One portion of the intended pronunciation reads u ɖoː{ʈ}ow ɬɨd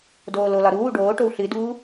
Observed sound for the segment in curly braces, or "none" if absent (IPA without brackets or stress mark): ʈ